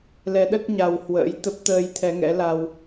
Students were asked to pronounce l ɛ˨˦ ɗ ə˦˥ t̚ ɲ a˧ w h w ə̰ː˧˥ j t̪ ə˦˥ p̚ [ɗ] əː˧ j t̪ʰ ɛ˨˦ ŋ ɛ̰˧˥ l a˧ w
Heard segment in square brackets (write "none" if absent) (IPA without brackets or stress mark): t̪